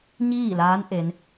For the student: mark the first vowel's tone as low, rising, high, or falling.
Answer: falling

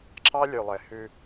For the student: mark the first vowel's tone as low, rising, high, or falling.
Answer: high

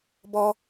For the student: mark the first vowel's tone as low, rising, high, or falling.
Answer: high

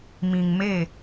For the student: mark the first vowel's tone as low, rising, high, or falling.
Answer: low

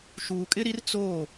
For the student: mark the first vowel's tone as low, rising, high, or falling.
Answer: low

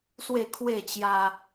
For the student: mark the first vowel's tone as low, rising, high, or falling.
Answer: falling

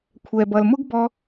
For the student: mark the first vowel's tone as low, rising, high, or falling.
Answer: low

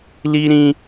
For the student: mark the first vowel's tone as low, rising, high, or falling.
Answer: high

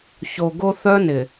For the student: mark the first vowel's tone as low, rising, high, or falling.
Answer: low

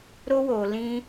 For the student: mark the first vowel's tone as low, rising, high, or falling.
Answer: high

